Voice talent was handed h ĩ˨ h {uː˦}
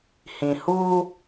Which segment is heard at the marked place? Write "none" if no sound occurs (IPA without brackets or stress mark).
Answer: uː˦